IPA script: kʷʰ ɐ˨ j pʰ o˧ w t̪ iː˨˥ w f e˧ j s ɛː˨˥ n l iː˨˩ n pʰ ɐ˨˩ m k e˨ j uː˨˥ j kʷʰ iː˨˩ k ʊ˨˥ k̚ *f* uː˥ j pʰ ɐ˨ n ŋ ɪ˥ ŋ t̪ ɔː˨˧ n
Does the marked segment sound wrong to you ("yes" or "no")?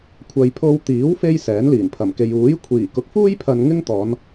no